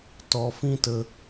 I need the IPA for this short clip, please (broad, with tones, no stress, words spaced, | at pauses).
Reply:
tɔ˨fĩ˧tə˨